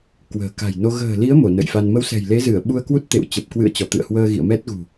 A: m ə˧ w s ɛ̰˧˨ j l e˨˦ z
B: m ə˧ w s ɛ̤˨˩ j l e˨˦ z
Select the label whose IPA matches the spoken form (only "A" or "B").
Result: B